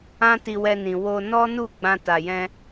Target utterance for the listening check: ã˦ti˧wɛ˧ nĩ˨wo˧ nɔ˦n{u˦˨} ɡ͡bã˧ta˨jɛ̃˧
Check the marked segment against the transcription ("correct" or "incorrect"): correct